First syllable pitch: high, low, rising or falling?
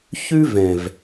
high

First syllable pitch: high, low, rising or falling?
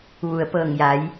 low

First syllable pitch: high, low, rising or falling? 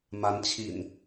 rising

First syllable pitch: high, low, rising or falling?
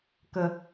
high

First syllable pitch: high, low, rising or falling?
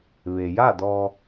low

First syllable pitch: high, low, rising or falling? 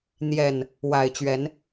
low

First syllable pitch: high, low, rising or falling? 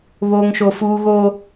high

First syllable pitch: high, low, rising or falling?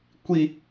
low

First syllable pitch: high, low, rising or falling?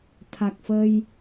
low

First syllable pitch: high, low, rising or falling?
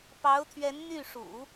rising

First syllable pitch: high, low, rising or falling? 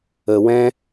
low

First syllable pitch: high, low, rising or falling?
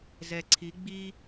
low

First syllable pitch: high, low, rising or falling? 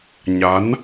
rising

